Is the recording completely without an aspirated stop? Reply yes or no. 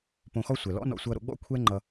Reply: no